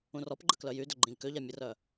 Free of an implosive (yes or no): yes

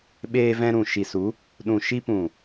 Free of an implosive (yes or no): no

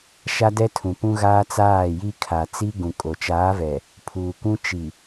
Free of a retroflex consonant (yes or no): yes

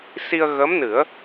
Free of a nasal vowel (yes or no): yes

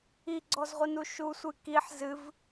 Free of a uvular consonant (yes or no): no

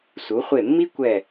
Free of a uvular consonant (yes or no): no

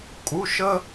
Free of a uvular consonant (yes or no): yes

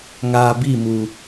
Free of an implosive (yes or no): yes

